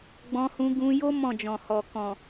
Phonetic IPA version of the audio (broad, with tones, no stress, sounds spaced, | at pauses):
ɡ͡b ɔ̃˧ h ũ˧ ɡ ũ˧ j o˦ m ɔ̃˦˨ d͡ʒ ɔ̃˨ h ɔ˨ k ɔ̃˨